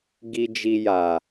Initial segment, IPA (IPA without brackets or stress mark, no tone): ɡ